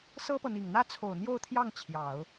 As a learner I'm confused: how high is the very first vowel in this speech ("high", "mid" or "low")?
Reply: mid